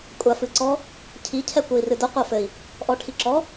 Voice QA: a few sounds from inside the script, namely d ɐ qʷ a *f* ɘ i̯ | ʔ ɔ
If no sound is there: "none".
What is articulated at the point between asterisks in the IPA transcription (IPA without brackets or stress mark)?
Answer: f